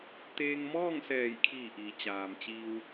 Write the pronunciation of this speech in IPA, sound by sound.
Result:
t̪ eː˧ ŋ m ɔː˥˨ ŋ s ɛː˧˩ j kʰ iː˧˩ ʔ iː˩ t͡ɕ aː˩ m t͡ɕ iː˧ w

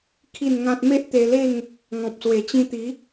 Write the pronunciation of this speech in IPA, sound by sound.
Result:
kʰ i˥˧ n ŋ ã˦ t̚ m e˦ ʔ t̪ e˧ l e˥˧ ŋ | ŋ ɔ̃˨ p̚ s w e˨˩ t͡ɕ ĩ˧ t̪ i˨˦

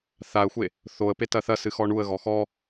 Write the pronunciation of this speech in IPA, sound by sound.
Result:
θ a ə̯ xʷ e | θ o ə̯ p e t ɐ θ ɐ s ɨ x ɔ ɳ u ə̯ ɣ ɔ x ɔ

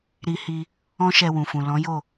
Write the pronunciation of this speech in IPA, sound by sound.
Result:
ɾ i˧ h i˧ | ɔ̃˦ ʃ ɛ˧ w ũ˨ f ũ˨ l ɔ̃˨˦ j o˦˨

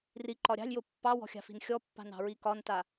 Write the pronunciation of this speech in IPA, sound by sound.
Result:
r i ǃ ɒ ɾʲ ɑ̤ lʲ j o pː ɑ w ɔ̤ xʲ a̤ f i̤ n xʲ ɔ pː a̤ n ɑ̤ ɹ i k ɒ n t a

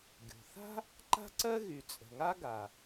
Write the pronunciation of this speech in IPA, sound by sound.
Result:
ɡʲ o̤˩ θ a̤˥ | ǃ a̤˥ ǀ ɜ˥ ɣ y˩ t͡sʼ ə̤˩ ŋ a˥ ɡ a˩

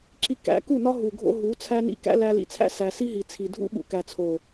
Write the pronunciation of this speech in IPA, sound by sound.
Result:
ǁ i˧ k æ̰˨˦ k u˦˨ n ɒ˦ ɦ u˨ ɡʱ o̰˧ ɦ u˨˦ t͡sʰ æ˦ n ḭ˦ k æ̰˦ l æ˧ l ḭ˨ t͡sʰ æ̰˦ s æ˧ s i˦ ɦ i˨ t͡sʰ i˨ dʱ ṵ˦ ɓ ṵ˨ k æ˨ t͡sʰ o˨

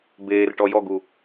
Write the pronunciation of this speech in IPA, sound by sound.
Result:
b eː r ʈ ɔ j ɔ ɡ u

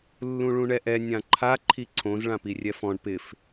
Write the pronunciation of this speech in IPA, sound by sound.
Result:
lː ũ ɭ ũ ɳ ɛ ʔ ɛ nʲ ã ǃʰ a ǃʰ i ǀʰ õ z ɭ ã p i rʲ ɛ f ɔ̃ ɳ p ɪ f

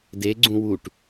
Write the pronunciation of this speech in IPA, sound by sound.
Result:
d e ɡ͡ǀ ũ w u ʈ

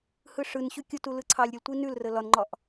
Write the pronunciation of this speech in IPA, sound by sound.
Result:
h ɯ ʂ ɯ n ɕ ʉ kʲ u t u l ɯ ǀʰ ɑ lʲ ɾʲ u l tʷ i n ʉ l r ə l ɒ n ŋ͡ǃ ɒ ʔ

